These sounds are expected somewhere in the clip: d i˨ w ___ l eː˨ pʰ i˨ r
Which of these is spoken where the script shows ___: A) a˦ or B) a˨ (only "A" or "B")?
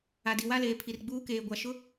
A